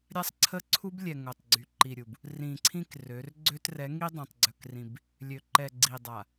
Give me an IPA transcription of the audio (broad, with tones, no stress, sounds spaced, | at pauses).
ɾʲ a˦ sˤ ǀʰ ə˦ ǀʰ u˦ b lʲ ɛ˨ ŋ o˨ tˤ ɡ͡ǀ y˨ ǃ i˨ ɾʲ u˨ b | r ĩ˨ ǀʰ ĩ˦ k r ø˨˦ r ɡ͡ǀ ø˦ t r ɛ˨˦ ŋ i˦ dˤ ɛ̃˨ tˤ ɡ͡ǀ œ˨ k r ĩ˨ b | lʲ ø˨ ǃ ɛ˨ ɡ͡ǀ i˨ dˤ a˨